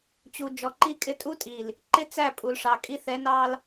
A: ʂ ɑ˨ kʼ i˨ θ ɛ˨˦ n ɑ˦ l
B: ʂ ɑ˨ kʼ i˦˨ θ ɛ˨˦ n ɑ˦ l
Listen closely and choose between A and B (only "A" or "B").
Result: B